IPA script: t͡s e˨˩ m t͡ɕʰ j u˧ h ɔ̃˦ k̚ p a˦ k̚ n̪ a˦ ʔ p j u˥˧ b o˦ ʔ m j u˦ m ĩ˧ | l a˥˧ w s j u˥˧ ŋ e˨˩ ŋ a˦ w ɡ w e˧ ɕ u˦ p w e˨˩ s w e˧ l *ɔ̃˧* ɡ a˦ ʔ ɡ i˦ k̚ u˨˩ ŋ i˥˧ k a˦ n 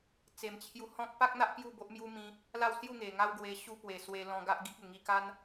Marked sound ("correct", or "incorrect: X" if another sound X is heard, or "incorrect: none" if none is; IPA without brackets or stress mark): correct